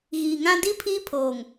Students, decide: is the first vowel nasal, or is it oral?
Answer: oral